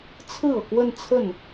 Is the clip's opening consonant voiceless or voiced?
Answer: voiceless